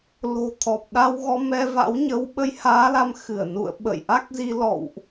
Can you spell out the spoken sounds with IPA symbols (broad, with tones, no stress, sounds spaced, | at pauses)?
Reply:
l o̤˨˩ t̪ʰ ɔ˨˩ p̚ ɗ a˧ w ɣ ɔ˧ m ɛ˧ v a̰˧˥ w ɲ ə˨˦ w ɓ ə˧ j h aː˨˦ l a˨˦ m x ɨ˧˩ ə̯ n ṵ˧˨ ə̯ ɓ ə̰˧˨ j ʔ a˦˥ k̚ z i˧ l ɔ̰˧˨ w ʔ